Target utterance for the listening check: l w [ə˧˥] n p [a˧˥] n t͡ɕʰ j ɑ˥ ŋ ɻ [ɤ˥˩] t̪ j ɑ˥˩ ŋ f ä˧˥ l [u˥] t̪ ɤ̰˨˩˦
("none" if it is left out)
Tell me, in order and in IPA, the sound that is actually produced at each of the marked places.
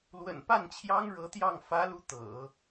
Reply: ə̰˨˩, a˥˩, ɤ˧˥, u˧˥

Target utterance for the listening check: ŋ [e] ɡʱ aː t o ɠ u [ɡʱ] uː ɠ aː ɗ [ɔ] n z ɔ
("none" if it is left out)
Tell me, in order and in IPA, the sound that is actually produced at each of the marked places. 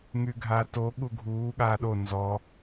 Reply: y, ɡʱ, o

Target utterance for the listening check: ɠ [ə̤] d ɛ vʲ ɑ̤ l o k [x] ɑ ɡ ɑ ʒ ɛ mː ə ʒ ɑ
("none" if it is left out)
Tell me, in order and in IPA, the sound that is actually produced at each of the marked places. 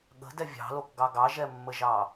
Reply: ə̤, ɡ

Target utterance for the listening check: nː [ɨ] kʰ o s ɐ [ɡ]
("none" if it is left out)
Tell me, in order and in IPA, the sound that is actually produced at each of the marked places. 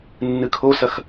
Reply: ɨ, x

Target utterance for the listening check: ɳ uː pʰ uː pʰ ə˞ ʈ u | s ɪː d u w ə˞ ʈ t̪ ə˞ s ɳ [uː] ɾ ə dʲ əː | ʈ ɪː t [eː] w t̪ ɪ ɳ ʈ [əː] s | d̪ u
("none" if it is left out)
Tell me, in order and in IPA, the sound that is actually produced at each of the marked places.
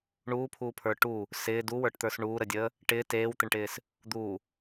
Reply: uː, eː, ɪː

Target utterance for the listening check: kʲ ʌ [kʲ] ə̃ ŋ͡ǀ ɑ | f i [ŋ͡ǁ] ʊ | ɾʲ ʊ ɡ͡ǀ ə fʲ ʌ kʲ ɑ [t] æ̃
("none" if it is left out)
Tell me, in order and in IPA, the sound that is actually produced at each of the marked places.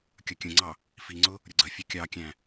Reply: kʲ, ŋ͡ǀ, kʲ

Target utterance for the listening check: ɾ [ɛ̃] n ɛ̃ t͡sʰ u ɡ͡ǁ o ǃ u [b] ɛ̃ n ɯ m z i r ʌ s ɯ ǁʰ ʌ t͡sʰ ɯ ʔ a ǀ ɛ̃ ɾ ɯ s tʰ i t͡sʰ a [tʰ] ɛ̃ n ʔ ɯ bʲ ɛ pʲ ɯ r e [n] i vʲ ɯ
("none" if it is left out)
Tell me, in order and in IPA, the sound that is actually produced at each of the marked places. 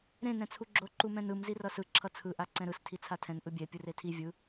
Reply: ẽ, m, tʰ, tʰ

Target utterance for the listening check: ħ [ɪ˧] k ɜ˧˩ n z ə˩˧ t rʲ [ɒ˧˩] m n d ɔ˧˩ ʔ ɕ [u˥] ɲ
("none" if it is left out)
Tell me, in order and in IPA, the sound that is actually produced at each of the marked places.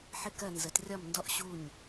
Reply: ɪ˧, ɒ˧˩, u˧˩

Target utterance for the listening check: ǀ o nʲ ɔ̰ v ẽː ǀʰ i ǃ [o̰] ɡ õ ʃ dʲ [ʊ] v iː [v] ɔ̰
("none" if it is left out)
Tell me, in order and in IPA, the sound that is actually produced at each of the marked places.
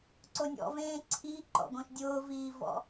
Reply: ɔ̰, ʊː, v

